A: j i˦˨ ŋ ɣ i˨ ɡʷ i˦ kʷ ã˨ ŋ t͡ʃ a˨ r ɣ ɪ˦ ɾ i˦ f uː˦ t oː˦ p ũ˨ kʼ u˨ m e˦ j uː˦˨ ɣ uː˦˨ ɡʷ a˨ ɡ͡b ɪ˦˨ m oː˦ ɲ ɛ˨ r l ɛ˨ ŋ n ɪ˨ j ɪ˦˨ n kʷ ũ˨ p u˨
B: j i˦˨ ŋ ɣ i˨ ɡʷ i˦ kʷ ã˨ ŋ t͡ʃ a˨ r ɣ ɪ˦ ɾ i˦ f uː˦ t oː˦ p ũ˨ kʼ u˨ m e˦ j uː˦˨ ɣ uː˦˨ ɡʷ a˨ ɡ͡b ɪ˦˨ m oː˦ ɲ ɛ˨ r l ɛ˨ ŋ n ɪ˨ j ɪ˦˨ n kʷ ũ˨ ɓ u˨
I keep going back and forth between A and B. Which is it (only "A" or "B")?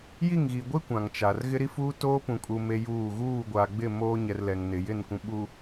B